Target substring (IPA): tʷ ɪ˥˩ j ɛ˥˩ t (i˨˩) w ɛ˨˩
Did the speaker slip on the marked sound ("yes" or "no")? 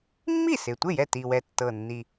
no